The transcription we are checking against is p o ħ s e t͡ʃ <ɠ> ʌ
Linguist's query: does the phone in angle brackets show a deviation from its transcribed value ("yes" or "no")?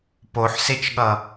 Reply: no